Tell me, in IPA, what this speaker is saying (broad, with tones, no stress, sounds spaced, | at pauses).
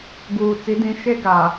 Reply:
ɡ uː˨ t͡s i˨˦ d ĩ˨˦ ʃ e˦ ɡ a˨